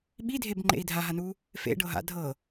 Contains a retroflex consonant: yes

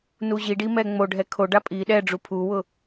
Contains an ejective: yes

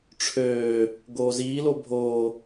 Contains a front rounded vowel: yes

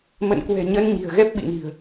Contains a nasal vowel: no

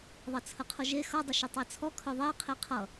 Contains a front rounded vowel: yes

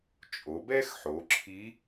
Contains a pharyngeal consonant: yes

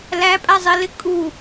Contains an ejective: yes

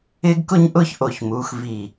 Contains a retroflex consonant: no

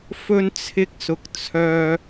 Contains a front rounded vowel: yes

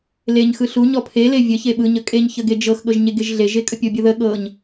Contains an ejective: yes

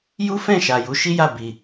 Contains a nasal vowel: yes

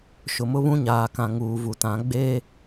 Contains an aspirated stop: no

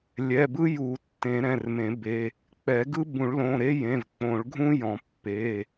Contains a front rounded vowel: no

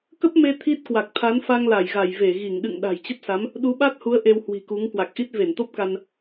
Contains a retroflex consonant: no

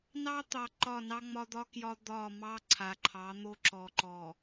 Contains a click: yes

